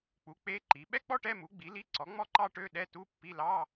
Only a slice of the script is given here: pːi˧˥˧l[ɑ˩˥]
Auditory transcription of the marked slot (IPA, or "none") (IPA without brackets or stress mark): ɑ˧˥˧